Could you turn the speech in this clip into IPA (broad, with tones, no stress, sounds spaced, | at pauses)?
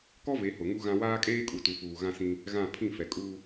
k ɔ˦ v e˨˦ h ʊ˨ ŋ u˦ ɣ ã˦ w aː˦ kʼ eː˦ kʼ u˨ t u˨ f uː˨ ɣ ã˦ s ĩ˦ | ɣ ã˦˨ pʰ ĩ˦˨ f ɛ˨ kʼ uː˦